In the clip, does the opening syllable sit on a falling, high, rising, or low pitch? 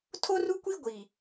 high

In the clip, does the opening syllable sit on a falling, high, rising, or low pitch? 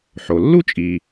low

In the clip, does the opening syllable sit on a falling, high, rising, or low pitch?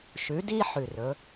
rising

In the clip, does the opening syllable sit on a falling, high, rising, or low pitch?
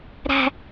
high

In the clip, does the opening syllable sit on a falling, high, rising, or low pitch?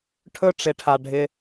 high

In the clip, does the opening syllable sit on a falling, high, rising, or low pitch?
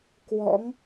rising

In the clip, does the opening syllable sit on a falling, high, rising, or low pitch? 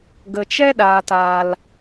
low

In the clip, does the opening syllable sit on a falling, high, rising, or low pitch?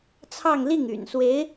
falling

